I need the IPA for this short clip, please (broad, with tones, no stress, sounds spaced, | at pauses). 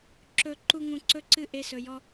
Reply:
ǁ ɵ˧ ǃ u˦ ŋ ũ˧ ǀ ɵ˦ ǀ ɨ˦ ʔ e˧ s ɵ˨ j ɔ˧